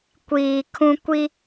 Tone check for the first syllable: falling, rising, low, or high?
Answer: low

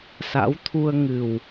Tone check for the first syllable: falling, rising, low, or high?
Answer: rising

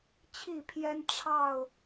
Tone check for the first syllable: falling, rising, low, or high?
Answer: falling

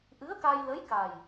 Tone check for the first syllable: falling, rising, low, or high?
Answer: rising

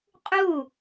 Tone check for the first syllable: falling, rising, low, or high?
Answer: falling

